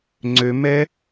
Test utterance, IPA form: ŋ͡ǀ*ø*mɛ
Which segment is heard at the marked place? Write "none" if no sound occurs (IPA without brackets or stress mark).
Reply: ø